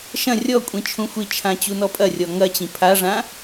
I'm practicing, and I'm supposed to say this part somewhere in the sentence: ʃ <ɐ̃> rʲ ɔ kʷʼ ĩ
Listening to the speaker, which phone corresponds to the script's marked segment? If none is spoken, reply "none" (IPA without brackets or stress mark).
ɐ̃